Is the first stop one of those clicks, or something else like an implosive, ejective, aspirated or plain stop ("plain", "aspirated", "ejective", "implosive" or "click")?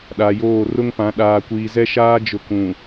implosive